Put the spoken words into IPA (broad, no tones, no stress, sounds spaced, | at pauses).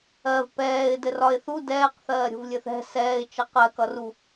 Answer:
ɜ v p ɛː ɪ̯ d ɘ r ɒ ɪ̯ θ u d ɛː q θ ɜː ɾʲ o̤ v lʲ ɘ θ ɛ̤ s ɛː ɪ̯ t͡ʃ ʌ q ɜ k ʌ r u